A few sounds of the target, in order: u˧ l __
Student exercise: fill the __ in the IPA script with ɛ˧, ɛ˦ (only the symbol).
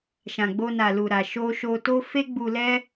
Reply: ɛ˦